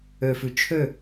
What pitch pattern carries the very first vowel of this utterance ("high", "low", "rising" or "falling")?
low